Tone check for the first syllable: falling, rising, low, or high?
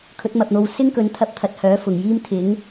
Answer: rising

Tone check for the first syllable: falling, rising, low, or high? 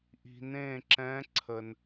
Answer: low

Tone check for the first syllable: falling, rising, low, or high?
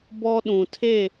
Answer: high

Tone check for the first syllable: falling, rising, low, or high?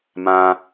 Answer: high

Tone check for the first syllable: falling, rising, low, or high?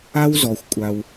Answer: high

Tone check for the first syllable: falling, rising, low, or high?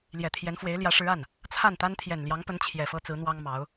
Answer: low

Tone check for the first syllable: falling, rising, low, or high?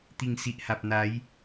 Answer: low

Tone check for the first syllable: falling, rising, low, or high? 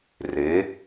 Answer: rising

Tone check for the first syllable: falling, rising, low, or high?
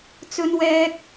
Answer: high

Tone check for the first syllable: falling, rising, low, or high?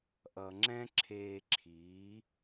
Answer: low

